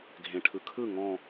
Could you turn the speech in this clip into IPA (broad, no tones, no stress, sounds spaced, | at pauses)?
ɡʱ ẽ ʈʰ ɯ kʰ ɯ ŋ ɔ̃